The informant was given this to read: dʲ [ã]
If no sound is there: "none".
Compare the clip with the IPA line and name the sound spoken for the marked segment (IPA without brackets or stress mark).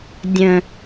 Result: ə̃